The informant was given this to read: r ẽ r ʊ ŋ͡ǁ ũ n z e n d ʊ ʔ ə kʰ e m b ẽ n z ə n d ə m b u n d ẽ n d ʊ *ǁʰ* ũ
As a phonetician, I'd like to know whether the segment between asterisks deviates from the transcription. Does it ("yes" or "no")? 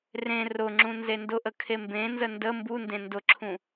no